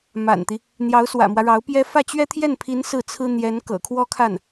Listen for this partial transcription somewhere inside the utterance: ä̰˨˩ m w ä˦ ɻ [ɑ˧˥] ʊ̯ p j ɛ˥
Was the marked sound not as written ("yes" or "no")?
no